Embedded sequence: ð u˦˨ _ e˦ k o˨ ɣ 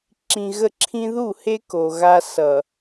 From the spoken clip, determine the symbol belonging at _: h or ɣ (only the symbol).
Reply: h